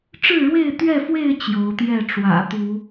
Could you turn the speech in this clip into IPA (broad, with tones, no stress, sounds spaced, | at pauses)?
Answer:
ʈ͡ʂ ɻ̩˥˨ ɻ w e˥˨ ɪ̯ t̪ ɥ ɛ˥˨ f w e˥˨ ɪ̯ t͡ɕ j o˨˦ ʊ̯ t̪ j ɛ˥˨ ʈ͡ʂ w ä̰˨˩ t̪ u˨˦